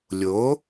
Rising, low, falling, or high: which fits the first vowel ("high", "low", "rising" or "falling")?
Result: rising